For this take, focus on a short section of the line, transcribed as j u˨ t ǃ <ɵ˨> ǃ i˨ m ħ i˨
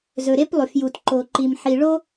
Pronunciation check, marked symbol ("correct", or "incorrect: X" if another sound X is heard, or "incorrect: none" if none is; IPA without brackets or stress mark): incorrect: o˨